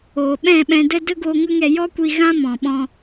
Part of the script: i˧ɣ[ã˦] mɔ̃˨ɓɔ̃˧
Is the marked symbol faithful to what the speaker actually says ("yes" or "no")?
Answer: yes